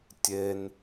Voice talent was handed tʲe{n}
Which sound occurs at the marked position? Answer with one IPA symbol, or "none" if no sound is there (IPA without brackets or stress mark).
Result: n